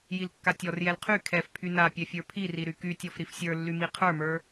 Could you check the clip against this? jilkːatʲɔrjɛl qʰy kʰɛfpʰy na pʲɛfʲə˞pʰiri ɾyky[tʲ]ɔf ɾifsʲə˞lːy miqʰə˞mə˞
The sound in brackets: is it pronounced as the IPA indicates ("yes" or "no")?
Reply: yes